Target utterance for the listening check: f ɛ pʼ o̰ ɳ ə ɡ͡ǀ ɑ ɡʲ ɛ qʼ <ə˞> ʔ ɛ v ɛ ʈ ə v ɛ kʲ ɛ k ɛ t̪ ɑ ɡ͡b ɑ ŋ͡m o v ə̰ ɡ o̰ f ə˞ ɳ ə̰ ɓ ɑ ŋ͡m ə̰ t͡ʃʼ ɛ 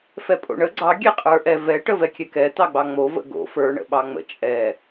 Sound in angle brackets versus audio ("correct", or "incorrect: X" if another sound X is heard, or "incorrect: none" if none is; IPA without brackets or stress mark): correct